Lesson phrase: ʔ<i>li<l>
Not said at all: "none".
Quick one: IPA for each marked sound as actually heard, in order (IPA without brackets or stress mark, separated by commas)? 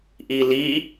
i, none